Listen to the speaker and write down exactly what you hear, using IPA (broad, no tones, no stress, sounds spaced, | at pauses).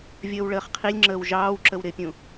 vʲ əː w ɭ əː χ qʰ i lʲ ŋ͡ǁ əː w ʒ ɑː w ǁ ə w ɾ ɪ pʲ ũ